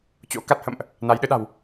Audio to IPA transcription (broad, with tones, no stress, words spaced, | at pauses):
t͡ɕo̰˧˥ka˦˥t̚hə̰˧˨mʔ | na˨˦jɗɨ˨˦ɗa̤˨˩w